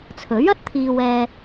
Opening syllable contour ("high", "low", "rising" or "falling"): rising